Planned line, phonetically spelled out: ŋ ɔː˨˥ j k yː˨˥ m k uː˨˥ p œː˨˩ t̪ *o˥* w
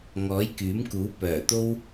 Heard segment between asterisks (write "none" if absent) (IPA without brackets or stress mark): o˥